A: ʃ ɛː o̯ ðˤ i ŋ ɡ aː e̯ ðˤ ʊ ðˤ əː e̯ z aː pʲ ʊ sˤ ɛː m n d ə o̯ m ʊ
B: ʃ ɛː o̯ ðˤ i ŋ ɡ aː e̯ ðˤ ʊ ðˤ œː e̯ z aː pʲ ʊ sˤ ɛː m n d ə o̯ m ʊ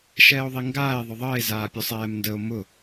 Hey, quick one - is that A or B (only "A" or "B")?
A